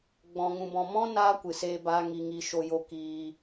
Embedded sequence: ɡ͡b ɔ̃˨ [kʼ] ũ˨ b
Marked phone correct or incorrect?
incorrect